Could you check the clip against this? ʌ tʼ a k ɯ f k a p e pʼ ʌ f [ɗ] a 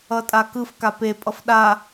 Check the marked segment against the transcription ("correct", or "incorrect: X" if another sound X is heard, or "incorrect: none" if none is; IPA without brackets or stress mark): correct